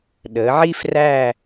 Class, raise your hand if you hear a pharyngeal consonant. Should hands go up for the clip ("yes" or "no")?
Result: yes